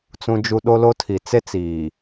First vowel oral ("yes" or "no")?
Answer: no